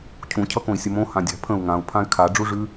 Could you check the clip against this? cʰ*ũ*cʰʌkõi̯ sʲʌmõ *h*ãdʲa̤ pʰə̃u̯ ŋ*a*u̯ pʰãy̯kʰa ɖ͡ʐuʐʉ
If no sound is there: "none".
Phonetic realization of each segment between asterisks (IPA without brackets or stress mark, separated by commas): ũ, h, ã